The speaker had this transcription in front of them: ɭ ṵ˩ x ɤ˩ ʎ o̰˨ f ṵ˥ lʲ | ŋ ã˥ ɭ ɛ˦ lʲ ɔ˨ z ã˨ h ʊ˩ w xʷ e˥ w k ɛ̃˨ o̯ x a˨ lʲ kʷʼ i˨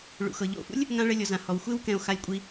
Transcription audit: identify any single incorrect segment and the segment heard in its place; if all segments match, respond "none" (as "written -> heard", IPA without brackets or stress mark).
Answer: ʊ˩ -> ɔ˩